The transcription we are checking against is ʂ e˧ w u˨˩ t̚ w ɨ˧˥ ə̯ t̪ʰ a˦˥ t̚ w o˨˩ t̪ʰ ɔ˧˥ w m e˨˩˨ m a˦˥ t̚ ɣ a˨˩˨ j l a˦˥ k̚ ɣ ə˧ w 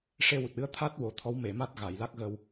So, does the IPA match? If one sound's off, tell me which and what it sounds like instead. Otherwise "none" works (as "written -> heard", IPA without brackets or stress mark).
none